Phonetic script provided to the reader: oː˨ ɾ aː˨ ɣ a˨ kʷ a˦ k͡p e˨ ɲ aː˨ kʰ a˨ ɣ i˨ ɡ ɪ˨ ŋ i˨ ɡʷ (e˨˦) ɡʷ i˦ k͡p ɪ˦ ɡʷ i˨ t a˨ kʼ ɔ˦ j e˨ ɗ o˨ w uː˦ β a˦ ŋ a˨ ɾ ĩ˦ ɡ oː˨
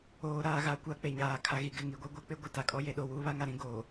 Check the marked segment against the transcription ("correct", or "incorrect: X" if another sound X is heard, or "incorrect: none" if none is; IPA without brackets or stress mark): incorrect: e˦